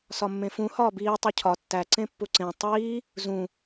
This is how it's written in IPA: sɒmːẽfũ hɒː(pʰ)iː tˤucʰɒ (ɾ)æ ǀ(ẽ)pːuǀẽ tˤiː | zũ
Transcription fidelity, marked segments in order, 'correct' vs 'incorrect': incorrect, incorrect, correct

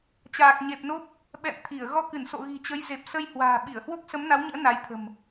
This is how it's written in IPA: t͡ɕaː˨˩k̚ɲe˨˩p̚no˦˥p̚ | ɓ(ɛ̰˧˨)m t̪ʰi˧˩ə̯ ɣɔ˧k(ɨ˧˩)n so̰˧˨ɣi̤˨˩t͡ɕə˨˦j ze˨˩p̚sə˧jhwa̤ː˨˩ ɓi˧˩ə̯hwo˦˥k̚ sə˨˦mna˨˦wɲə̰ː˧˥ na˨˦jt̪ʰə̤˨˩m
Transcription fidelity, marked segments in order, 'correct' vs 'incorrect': correct, correct

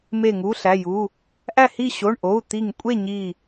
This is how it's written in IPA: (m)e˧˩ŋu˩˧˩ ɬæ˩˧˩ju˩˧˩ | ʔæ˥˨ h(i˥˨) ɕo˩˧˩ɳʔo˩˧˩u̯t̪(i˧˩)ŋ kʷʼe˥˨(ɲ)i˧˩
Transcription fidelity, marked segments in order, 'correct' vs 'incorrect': correct, correct, correct, correct

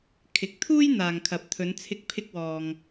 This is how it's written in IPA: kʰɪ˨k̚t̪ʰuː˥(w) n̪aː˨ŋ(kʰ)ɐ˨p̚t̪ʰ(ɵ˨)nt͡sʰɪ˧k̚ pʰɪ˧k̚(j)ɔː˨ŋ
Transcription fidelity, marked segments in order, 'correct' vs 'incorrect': incorrect, correct, incorrect, incorrect

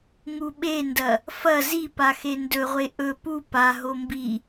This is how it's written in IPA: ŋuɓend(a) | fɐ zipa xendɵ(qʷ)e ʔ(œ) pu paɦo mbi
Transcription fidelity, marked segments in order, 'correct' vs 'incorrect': incorrect, incorrect, incorrect

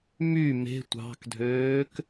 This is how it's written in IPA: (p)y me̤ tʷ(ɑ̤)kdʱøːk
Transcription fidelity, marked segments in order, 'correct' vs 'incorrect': incorrect, correct

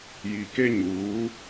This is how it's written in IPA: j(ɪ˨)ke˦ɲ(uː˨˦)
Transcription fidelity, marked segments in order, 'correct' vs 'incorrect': incorrect, correct

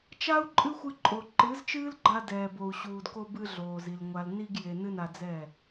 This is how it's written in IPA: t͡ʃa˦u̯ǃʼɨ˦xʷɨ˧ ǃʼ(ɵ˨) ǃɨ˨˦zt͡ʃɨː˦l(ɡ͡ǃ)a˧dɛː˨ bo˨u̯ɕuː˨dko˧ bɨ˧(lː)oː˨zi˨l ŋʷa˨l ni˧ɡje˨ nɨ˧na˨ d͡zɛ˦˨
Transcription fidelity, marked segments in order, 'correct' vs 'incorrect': incorrect, correct, incorrect

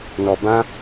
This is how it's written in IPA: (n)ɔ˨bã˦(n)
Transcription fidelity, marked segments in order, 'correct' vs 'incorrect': correct, incorrect

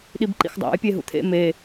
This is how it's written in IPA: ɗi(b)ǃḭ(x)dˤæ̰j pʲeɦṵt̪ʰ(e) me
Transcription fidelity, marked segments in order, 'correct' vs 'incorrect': correct, correct, incorrect

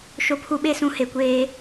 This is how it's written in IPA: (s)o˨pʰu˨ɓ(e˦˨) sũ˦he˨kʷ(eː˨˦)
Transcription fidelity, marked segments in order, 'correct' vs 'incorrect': incorrect, correct, incorrect

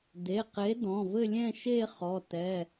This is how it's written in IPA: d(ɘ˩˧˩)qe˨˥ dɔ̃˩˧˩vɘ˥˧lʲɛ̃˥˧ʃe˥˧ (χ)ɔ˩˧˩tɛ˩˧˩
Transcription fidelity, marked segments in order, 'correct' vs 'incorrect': incorrect, correct

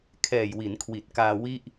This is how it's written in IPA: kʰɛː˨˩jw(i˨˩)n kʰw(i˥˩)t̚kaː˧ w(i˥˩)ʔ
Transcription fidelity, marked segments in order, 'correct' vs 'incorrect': incorrect, incorrect, correct

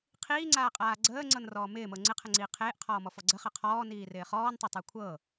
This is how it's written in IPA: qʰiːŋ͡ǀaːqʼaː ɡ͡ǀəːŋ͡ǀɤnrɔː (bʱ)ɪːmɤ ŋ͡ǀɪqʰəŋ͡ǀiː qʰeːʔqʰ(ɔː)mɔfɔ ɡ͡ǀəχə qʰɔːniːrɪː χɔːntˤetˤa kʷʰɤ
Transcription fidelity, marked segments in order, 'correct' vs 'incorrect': incorrect, correct

